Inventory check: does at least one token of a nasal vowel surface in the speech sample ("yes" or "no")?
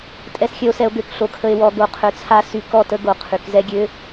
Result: no